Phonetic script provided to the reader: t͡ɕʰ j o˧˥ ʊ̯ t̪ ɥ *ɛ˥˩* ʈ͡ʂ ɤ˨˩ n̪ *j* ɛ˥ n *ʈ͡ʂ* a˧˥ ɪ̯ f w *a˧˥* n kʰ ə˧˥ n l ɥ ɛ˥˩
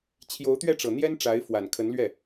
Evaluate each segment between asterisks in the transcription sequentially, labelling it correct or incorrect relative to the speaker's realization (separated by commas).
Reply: correct, correct, correct, incorrect